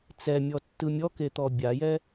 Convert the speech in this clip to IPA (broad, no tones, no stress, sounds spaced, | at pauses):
t͡s ɛ mʲ ɔ tː ɯ mʲ ɔ k e t̪ ɔ bʲ a j ɛ